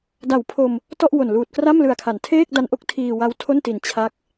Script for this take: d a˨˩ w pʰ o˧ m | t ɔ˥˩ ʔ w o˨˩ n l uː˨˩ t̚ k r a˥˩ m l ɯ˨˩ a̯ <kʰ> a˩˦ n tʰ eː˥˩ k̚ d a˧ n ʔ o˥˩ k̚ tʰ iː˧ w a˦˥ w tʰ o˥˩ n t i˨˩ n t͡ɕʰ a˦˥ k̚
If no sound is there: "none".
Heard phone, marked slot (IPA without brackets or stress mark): kʰ